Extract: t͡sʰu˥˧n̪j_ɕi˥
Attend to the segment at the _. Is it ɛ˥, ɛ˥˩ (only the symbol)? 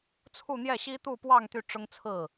ɛ˥˩